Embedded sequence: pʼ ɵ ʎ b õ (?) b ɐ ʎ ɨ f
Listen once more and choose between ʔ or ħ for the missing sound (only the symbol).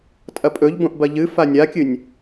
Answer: ʔ